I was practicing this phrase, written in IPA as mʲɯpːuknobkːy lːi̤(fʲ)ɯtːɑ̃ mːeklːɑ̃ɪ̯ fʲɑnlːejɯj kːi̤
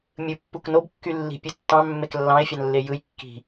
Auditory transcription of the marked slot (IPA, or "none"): pʲ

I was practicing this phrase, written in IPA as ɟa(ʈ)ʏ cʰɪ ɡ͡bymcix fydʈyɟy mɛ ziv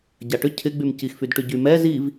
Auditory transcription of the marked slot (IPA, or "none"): ʈ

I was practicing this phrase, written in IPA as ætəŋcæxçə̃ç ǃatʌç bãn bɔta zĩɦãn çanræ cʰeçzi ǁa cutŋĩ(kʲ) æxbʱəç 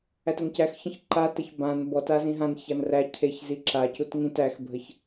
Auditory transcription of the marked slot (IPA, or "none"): t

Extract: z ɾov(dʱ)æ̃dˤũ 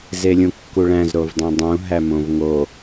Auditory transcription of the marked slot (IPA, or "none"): dˤ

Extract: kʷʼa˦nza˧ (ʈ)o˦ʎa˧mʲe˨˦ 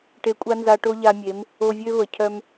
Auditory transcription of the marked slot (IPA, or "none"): ʈ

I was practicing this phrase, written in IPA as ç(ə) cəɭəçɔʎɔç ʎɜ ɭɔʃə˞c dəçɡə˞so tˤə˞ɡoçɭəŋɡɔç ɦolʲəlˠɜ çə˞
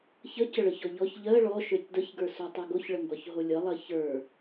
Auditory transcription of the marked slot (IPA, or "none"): ə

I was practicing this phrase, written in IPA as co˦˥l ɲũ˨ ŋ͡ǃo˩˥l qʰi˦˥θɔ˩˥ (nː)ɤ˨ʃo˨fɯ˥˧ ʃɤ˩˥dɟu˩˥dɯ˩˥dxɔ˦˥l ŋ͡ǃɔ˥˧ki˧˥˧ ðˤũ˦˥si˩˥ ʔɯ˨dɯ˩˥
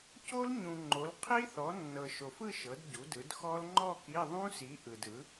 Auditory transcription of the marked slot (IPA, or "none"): nː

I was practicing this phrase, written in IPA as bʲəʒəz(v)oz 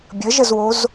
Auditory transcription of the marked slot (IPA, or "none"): w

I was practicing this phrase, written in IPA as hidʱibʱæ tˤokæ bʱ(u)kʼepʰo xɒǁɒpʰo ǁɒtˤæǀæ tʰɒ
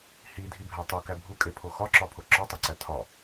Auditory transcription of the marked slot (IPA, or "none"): u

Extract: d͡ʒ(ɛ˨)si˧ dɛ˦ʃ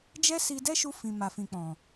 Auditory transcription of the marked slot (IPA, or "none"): ɛ˦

